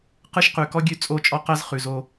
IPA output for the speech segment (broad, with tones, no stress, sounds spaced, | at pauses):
q ɯ˦ ʃ q ʉ˨ k ɔ˦ ɡʲ ʉ˦˨ t͡sʼ o˦˨ t͡ʃʼ ɔ˦ q ɜ˦ z χ ʉ˨ z o˧